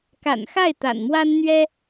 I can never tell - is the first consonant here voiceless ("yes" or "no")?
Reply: yes